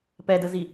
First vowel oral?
yes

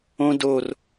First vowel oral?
no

